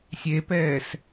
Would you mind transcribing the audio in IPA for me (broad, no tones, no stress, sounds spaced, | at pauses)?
sʲ e p ɛː s